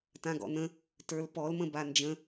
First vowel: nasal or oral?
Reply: nasal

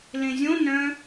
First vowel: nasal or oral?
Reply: nasal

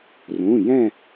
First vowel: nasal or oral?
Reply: nasal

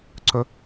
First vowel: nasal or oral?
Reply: oral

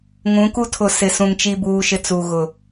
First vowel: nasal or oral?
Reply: nasal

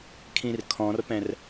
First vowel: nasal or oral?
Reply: nasal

